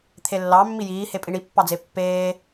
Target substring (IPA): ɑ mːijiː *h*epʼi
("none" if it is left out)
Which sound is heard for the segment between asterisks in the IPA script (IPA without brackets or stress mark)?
h